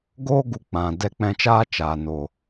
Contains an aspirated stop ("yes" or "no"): no